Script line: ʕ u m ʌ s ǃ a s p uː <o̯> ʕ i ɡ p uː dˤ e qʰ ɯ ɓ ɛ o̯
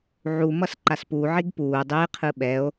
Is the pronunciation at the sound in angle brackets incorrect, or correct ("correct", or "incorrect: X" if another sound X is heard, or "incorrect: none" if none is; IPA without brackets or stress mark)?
incorrect: none